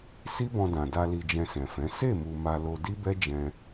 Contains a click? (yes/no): no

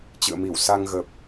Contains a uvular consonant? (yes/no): no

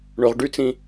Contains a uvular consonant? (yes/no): yes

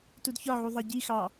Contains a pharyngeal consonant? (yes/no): yes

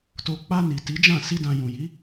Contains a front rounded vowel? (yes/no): no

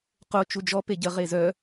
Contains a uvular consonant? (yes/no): yes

